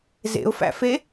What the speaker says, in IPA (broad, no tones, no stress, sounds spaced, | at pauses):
z ḛ ʊ̯ f æ̰ f e